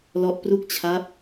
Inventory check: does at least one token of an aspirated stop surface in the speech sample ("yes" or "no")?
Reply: yes